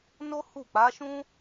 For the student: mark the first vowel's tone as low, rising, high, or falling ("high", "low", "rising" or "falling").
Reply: high